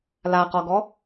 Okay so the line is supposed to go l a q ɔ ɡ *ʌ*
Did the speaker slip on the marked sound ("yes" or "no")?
yes